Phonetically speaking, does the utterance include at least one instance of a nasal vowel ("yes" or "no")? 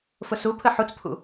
no